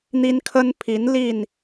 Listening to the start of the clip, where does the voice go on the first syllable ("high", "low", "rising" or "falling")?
high